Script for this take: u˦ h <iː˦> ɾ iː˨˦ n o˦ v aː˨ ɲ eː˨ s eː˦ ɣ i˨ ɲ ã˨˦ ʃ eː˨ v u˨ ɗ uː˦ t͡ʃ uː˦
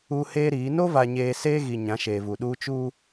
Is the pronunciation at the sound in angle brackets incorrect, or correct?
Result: incorrect